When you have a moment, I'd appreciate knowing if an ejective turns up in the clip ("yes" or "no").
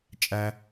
yes